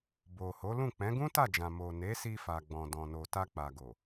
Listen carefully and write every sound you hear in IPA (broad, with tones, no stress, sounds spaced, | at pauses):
b o˨ h o˨˦ l ũ˦˨ k͡p ɛ̃˨˦ ɡ ũ˦ t a˦˨ d͡ʒ ã˨ m o˨ n e˨˦ s i˧ f a˨ ɡ͡b ɔ̃˨ d ɔ̃˨ n o˨ t a˧ k͡p a˨ ɡ o˨